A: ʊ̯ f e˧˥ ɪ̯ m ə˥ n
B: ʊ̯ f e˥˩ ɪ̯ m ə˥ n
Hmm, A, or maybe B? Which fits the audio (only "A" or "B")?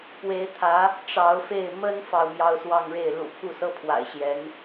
B